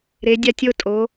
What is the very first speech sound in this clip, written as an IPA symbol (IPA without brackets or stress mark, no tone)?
ɾ